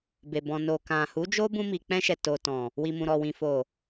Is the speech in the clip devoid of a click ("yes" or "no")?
yes